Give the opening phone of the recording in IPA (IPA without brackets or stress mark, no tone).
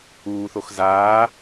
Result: uː